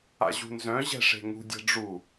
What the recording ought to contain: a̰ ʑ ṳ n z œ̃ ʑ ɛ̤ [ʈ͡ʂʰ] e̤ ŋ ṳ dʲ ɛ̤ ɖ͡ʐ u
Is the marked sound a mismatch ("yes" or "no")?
yes